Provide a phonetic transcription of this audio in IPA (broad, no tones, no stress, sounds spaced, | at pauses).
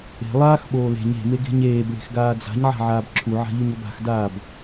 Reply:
e̤ lˠ aː x ɓ oː l e̤ ɲ e̤ m e ɡ e̤ ɲ eː b ɭ e̤ x ɡ aː d͡z a̤ ɲ ʕ a̤ ʕ aː b ǁʰ u ʕ a̤ ʎ u ɲ o b a̤ x d aː b